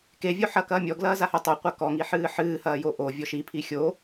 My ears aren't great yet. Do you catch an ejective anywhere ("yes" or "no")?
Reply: no